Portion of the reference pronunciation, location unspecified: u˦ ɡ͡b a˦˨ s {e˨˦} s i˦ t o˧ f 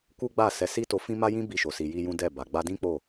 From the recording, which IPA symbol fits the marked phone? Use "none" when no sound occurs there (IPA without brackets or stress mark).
ɛ˨˦